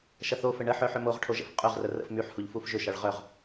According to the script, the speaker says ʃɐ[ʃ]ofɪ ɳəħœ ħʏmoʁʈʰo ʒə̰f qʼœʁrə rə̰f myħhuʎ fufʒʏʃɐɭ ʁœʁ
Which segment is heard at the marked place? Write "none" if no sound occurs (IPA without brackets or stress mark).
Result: θ